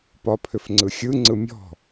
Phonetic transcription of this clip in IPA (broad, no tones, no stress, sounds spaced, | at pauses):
p ɒ pʰ ʏ f ŋ͡ǀ ɯ xʲ ɯ ŋ͡ǀ ɯ mʲ ɔ̤